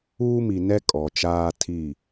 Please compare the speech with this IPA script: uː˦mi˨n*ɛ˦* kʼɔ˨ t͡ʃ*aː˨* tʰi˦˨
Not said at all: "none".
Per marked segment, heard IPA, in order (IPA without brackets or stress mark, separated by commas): ɛ˦, aː˦